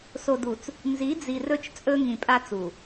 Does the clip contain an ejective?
yes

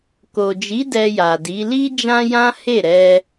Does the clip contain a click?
no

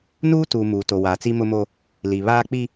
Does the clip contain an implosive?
no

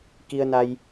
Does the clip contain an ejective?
no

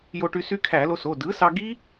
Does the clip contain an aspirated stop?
yes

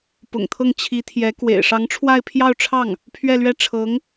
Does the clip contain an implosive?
no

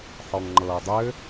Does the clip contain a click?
yes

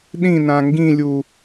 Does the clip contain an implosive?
yes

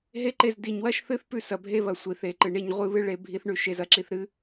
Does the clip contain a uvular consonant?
yes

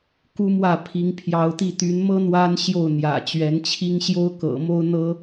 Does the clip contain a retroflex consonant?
no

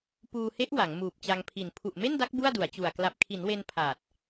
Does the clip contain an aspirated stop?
yes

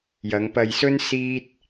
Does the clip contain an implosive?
no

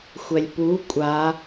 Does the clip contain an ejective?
yes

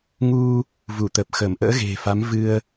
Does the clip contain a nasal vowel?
no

